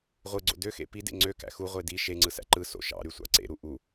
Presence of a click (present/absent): present